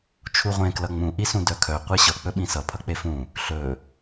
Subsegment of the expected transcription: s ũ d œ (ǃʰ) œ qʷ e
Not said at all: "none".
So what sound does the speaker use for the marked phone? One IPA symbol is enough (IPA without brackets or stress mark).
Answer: kʰ